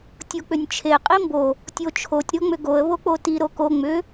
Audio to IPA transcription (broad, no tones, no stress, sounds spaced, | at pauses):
tʲ o k͡p ʏ nʲ t͡ʃʰ e qʼ i m b o | tʲ o t͡ʃʰ o tʲ ɾ o ŋ͡m ʏ ɡ o ə̯ β o k͡p o t i ɾ o k o ŋ͡m ʏ